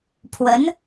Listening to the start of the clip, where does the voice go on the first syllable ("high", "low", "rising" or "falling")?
rising